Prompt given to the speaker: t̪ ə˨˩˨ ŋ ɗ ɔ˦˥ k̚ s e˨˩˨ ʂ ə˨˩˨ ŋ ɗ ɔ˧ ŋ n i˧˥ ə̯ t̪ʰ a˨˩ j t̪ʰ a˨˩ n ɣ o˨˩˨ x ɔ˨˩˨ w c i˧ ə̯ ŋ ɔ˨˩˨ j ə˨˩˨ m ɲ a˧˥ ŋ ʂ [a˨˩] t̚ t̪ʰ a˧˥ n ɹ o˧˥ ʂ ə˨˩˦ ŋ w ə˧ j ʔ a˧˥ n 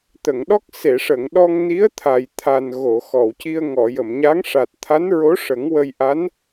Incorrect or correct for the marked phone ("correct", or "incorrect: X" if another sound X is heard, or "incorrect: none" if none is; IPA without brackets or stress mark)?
correct